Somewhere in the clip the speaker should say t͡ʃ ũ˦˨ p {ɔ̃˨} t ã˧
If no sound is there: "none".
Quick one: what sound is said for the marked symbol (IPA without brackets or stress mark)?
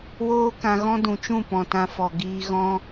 ɔ̃˨